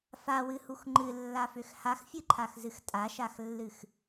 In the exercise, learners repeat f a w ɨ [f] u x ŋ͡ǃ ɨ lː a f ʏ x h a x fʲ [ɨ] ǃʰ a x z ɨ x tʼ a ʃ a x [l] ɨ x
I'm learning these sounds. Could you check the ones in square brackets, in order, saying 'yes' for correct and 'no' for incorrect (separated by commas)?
no, yes, no